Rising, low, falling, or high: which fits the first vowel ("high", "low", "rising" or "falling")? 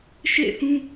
falling